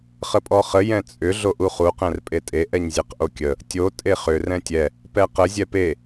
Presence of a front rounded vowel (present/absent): present